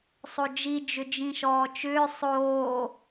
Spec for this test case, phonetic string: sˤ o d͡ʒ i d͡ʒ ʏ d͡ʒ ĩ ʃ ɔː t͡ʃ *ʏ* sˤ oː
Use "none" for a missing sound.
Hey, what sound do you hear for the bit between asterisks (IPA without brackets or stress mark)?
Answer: ʏː